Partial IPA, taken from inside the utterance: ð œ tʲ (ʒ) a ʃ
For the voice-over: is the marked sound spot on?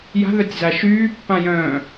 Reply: no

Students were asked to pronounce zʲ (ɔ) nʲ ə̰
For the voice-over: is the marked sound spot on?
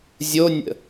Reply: no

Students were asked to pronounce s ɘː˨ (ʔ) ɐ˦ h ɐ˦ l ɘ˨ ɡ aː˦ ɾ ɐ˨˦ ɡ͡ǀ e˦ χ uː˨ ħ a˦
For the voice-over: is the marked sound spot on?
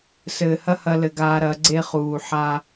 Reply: no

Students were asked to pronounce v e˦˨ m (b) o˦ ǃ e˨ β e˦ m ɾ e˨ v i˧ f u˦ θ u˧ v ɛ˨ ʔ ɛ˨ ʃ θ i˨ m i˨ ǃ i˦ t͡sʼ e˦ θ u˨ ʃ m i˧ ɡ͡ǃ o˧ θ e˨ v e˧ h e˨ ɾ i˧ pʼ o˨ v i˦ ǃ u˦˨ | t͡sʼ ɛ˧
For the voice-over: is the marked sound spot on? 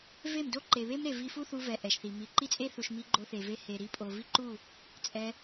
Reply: no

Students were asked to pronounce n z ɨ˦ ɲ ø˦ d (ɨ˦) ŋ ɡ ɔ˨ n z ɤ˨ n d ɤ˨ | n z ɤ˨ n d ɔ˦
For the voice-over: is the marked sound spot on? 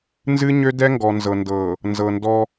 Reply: no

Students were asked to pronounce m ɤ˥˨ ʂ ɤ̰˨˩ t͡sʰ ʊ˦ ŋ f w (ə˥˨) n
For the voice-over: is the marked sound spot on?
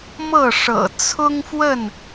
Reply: yes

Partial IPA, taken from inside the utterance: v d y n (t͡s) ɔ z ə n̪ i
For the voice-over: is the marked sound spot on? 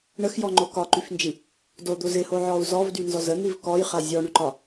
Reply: no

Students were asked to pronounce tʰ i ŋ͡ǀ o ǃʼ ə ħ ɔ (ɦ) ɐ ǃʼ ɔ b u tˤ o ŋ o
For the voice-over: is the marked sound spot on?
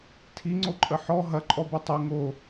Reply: yes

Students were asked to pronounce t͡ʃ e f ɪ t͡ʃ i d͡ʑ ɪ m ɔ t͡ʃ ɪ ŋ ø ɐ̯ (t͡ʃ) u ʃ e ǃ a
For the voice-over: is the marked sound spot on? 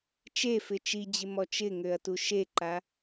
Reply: no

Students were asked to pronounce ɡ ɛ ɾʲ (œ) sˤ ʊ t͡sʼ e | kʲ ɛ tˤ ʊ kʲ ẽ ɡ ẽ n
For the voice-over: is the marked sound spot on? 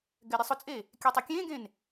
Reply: no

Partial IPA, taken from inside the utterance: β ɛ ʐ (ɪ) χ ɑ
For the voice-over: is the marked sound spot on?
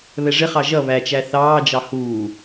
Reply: yes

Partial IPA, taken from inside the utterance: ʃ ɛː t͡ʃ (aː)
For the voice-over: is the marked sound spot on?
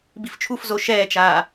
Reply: yes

